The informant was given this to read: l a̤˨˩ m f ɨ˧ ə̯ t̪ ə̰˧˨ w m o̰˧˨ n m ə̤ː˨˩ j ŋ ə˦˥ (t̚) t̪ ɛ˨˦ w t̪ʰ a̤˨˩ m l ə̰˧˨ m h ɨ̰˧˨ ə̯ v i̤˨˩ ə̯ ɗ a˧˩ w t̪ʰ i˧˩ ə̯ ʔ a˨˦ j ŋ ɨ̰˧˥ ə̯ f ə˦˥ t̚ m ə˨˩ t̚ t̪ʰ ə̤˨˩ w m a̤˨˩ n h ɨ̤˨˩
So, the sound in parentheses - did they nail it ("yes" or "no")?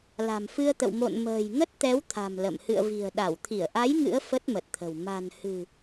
yes